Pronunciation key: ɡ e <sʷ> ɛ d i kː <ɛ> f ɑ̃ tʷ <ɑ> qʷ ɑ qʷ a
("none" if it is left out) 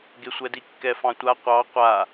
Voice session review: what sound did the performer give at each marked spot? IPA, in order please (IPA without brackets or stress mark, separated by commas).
sʷ, ɛ, a